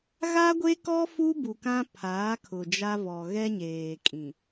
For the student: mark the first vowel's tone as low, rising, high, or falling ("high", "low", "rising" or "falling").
high